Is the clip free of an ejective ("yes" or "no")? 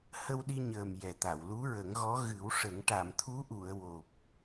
yes